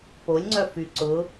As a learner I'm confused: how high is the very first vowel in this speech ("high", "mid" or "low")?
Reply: mid